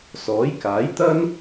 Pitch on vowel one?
rising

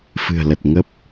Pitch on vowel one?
low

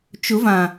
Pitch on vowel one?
rising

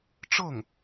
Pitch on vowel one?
falling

